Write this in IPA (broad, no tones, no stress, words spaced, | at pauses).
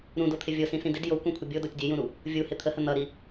ɾũdot̪ʰɪ vʲosĩsĩ dɪd jokʷẽkʷʰɪ bʲodotʲ dʲejũɾu | vʲuhɪ t̪ʰəhə n̪ʌɾi